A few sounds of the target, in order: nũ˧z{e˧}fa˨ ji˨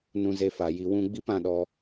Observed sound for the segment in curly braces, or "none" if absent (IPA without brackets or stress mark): e˧